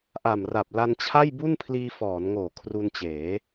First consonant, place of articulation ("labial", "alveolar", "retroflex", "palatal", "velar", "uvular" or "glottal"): glottal